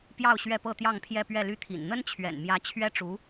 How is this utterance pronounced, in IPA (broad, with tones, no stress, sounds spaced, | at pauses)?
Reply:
p j ɑ˥˧ ʊ̯ ɕ ɥ ɛ˥˧ p ɤ˥˧ t̪ j ɑ˥˧ ŋ pʰ j ɛ˥˧ p ɥ ɛ˥˧ l y˥˩ t̪ʰ ḭ˨˩ n n̪ ə˥ n t͡ɕʰ ɥ ɛ̰˨˩ n m j ä˧˥ t͡ɕʰ ɥ ɛ˥ ʈ͡ʂ u˧˥